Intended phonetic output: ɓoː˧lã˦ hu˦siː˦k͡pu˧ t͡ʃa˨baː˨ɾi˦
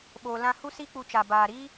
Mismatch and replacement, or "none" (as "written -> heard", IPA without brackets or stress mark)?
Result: oː˧ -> oː˨